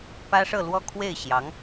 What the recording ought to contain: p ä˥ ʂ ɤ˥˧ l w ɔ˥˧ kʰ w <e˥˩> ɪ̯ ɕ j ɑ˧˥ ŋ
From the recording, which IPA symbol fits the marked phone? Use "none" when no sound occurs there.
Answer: e˥˩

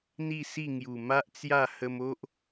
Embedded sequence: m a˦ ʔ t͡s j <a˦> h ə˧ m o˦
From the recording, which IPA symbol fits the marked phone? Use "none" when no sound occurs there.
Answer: a˥˧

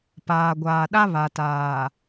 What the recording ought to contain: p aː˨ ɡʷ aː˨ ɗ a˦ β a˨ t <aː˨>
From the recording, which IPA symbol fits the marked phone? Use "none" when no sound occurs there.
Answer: aː˨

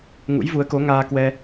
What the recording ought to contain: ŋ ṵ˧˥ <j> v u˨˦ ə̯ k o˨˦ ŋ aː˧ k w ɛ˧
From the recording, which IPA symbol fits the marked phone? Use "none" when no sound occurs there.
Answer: j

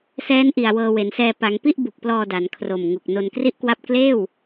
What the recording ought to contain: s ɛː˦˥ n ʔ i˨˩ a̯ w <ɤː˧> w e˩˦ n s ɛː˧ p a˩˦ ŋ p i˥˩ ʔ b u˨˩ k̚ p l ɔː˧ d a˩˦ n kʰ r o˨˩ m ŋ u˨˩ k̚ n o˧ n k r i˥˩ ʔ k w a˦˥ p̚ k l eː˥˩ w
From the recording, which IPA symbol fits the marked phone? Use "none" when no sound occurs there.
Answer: ɤː˧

